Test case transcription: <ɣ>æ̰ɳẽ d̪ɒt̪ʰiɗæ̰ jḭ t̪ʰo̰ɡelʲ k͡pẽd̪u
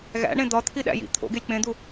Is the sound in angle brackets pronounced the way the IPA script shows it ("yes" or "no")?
yes